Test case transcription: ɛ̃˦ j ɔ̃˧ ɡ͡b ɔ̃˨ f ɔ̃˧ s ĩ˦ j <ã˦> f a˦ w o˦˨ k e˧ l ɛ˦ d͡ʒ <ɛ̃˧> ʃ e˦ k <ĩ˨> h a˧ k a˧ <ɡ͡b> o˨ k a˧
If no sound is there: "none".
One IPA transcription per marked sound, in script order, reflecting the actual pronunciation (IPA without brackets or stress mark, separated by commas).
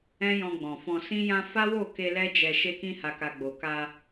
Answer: ã˦, ɛ˧, ĩ˦, ɡ͡b